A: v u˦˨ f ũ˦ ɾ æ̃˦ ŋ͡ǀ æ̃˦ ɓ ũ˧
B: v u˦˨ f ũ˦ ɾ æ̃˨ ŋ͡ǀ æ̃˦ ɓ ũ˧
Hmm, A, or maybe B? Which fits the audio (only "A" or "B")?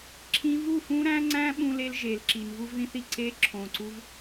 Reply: A